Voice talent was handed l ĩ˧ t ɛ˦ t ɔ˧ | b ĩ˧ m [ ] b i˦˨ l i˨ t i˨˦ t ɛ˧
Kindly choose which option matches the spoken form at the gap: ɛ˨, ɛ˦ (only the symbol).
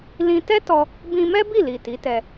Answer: ɛ˦